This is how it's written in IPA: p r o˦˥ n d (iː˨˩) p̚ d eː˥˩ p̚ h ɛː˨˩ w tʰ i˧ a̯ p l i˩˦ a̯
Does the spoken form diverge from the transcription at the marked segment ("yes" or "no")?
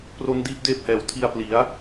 yes